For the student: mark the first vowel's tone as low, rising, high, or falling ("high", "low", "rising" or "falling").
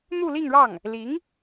falling